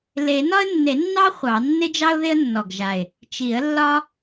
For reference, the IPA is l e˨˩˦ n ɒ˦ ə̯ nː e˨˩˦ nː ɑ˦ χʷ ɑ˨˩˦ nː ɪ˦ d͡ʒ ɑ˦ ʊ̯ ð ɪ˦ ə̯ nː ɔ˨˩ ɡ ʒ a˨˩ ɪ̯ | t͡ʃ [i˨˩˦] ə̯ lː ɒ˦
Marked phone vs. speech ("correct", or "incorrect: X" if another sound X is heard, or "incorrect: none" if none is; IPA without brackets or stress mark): correct